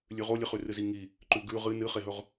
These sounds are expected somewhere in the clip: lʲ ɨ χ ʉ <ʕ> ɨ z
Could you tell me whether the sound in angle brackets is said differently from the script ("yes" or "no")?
yes